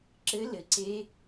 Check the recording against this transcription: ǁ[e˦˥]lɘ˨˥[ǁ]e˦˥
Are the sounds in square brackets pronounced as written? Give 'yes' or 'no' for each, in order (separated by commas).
no, no